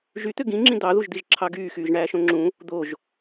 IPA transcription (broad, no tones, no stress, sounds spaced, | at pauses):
ʒ y t̪ ø ɡ ĩ ŋ͡ǁ ĩ d̪ ɑ ð u ʒ d̪ i ʒ ǁʰ ɑ ɡ yː x yː ʒ ɳ æː ʃ õ ŋ͡ǁ ũ | d̪ o ʒ